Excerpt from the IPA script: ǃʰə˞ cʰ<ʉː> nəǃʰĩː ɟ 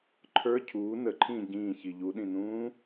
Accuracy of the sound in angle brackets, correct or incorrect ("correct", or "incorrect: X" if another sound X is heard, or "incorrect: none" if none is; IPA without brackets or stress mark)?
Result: incorrect: uː